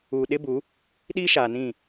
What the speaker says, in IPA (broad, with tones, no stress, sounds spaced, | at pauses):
uː˨ ɗ ɪ˦ b u˨˦ | ɗ iː˦ ʃ aː˨ n ĩ˦˨